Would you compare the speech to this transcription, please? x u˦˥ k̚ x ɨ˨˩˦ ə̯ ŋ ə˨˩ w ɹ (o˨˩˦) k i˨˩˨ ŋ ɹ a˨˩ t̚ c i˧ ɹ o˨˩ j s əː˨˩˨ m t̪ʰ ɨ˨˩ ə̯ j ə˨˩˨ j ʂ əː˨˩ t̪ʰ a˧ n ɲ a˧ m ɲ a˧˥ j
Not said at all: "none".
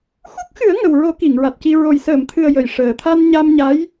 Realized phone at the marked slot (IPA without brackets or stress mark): o˨˩˦